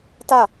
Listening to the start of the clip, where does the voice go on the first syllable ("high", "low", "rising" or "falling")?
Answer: falling